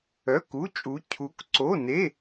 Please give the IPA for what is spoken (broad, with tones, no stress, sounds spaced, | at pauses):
œ˧˥˧ k u˧˥˧ t͡ʃʼ u˧˥ cʰ u˧˥ k ǀ o˧˥˧ n e˧˥˧